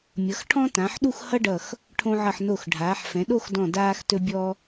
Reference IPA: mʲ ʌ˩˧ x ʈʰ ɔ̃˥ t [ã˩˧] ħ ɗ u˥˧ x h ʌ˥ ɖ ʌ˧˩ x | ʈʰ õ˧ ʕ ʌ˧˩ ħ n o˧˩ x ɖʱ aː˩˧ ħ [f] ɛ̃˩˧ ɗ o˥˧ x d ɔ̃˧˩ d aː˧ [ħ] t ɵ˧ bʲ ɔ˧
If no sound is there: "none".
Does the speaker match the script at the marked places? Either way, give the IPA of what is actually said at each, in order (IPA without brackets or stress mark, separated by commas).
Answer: ã˩˧, f, x